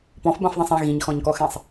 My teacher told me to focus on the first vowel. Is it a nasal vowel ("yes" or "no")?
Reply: yes